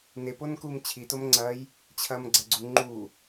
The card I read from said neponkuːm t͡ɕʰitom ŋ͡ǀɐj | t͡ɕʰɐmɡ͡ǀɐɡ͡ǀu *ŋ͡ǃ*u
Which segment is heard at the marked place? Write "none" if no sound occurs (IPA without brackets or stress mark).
ŋ͡ǃ